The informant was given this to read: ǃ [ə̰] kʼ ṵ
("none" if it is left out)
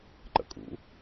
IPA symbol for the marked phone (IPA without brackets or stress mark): ə̰